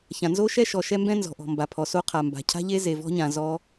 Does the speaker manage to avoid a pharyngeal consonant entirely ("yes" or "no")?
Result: yes